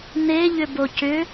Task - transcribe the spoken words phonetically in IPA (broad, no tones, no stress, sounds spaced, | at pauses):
n̪ e ʎ ʏ b o c ʏ